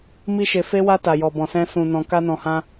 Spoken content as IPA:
mi˦ʃe˧fe˦wa˦ ta˧jɔ˧bɔ̃˧sɛ̃˦ sũ˧ nɔ̃˧ka˦nɔ̃˧hã˦

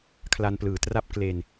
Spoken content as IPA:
kʰla˧nplɯː˩˦tra˥˩p̚ kle˧n

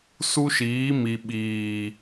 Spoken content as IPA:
su˦ʃiː˨˦ mi˨ɓiː˨

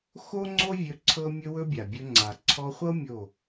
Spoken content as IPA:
xo˦ŋ͡ǀo˦vʲɵ˧ ǀʰɤ˦mʲɵ˦wɵ˦bʲa˨ bʲɵ˧ ŋ͡ǀa˨ ǀʰɔ˧χʷɤ˦ mʲo˦˨

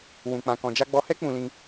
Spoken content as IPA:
wũ˧k͡pã˧ kɔ̃˧d͡ʒa˦ ɡ͡bɔ˧hɛ˦ k͡pũ˧lĩ˧

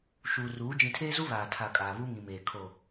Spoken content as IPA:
ʃuː˨ruː˨˦ d͡ʒĩ˨tʰeː˦zu˦ βaː˨tʰa˨ kʼaː˨βu˦ŋĩ˨meː˨ kʰo˨

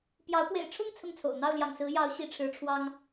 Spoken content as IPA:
pjɑ˨˦ʊ̯ pwḛ˨˩ɪ̯ʈ͡ʂʰʊ˥˨ŋ t͡sʰʊ˥˨ŋt͡sʰo̰˨˩ʊ̯ n̪ɑ˥˨ʊ̯ljɑ̰˨˩ŋsɹ̩˨˦ jɑ˨˦ʊ̯ ɕi˨˦ʈ͡ʂʰɻ̩˨˦ʈ͡ʂʰwɑ˦ŋ

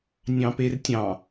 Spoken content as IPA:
nʲɑ̃pertʲɑ̃

